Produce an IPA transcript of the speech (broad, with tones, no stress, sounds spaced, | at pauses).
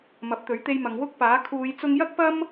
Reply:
m ɐ˨˥ p̚ t̪ ɵ˨˥ ɥ t̪ e˧ j m ɐ˨˧ ŋ w ʊ˥ k̚ p aː˨˥ kʰ uː˨˧ j t͡s ʊ˧ ŋ j ɐ˥ k̚ p ɐ˥ m